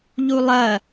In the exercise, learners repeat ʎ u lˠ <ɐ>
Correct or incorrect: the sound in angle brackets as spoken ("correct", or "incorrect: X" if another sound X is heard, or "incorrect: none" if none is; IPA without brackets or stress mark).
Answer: correct